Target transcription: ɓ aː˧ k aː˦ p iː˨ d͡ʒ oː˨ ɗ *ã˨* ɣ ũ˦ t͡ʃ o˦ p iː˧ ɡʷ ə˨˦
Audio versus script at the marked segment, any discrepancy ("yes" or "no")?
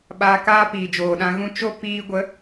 yes